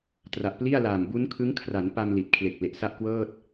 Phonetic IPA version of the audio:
t r a˨˩ ʔ p l i˥˩ a̯ l aː˨˩ m b u˦˥ n kʰ ɯ˦˥ ŋ kʰ r a˩˦ n p a˧ m l i˨˩ t̚ kʰ l e˨˩ k̚ l e˨˩ ʔ s a˥˩ ʔ k w ɤː˥˩ t̚

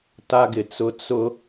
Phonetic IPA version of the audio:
t a˦ ɡ ɪ˨ t͡s ʊ˦ t͡s ʊ˦

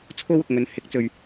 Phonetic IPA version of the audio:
t͡sʰ o˥ w ʊ˨ k̚ ŋ ɵ˨˧ n h ɪ˨˥ k̚ t͡s ɵ˨ ɥ

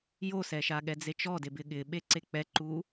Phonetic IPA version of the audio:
j o s ɛ ʃ a ɠ ɛ d͡z e t͡ʃ ɔ d e b ɪ ɠ ɪ ɓ e ǀ e k͡p ɛ ǃ u

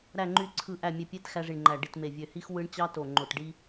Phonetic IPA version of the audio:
ɾ æ˨˩ ŋ͡ǃ y˨˩ ǀʰ ɯ˨˩ ʔ æ˨˩ mʲ e˨˩ pʲ e˧ t x æ˧ ʐ i˨˩ ɳ ŋ͡ǃ æ˨˩ ɖ i˨˩ t m e˨˩ vʲ ø˨˩ h i˧ x w ɯ˧ ɳ t͡ɕ ɑ˧ t o˨˩ ŋ͡ǃ o˨˩ t ɖ i˧

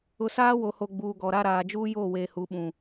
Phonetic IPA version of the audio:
ʊ˨ s aː˦ w o˨ h o˨ ɡ͡b uː˨ ɡ ɔ˨ ɾ a˦ ɾ aː˨ d͡ʒ uː˦ j oː˦˨ w eː˨ h u˨˦ ɓ ũ˨

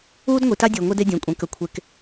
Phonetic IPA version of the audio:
uː˦ d ŋʷ i˨ t a˦ dʲ e˨ ŋʷ e˦ d e˦ dʲ ə̃ː˨ kʷʼ ẽ˨˦ k ə˨ kʷʰ e˨ k

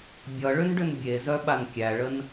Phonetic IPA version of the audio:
bʲ ʌ ɭ ʏ n ɖ ʏ n bʲ e z œ ɓ a n kʲ æ ɭ ə n

